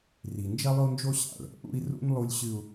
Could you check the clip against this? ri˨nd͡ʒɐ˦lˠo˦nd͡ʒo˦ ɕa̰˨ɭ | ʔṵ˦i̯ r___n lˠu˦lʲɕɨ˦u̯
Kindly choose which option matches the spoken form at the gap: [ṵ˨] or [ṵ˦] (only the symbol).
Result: ṵ˦